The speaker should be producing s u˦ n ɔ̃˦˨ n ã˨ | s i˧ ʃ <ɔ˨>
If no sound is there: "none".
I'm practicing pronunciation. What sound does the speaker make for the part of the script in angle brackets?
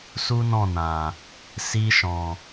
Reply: ɔ̃˨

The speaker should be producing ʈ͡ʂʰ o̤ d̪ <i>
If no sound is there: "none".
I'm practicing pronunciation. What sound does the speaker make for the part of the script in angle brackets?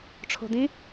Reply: ĩ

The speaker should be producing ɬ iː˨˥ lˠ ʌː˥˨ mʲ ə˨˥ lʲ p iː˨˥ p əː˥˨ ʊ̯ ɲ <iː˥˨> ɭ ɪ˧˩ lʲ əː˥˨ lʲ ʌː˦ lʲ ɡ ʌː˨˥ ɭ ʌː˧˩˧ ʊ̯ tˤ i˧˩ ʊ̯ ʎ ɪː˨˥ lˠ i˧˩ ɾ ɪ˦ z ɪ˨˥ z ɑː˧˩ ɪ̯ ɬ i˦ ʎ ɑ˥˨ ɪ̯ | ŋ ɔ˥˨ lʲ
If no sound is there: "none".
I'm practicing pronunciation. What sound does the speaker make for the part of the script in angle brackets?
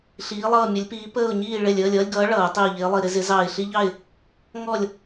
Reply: iː˥˨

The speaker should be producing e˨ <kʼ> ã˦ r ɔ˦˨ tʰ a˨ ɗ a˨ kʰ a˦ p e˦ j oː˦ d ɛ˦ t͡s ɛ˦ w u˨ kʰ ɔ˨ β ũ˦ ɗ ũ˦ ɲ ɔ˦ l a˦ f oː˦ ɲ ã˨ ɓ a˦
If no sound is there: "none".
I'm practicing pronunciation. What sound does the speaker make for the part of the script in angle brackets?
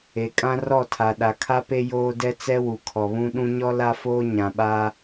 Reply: kʼ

